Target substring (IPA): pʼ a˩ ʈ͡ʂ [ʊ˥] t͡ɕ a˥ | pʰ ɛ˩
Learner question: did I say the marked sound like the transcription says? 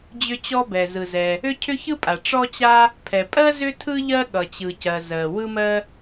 no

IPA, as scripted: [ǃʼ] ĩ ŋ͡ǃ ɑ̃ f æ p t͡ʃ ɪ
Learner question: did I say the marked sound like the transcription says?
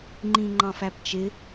no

